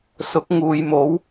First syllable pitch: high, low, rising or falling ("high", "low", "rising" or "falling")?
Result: rising